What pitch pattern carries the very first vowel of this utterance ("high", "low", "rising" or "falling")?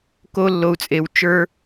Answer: high